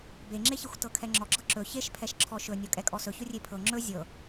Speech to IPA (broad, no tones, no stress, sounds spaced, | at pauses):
b e ŋ͡ǁ e ç e xʷ t ɤ kʰ ɛ ŋ͡ǁ ɔ ɡ͡ǁ ɤ ǁ ɵ ç e ʃ pʰ ɛ ʃ ǁʰ ɔ ʃ ɵ nʲ ɔ kʼ ɛ kʼ ɔ s ɵ ç ɵ rʲ e pʰ ɤ ŋ͡ǁ ɵ zʲ ɤ